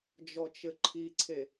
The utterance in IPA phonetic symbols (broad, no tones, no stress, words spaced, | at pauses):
d͡ʒɔt͡ʃɘǃʰiǀʰe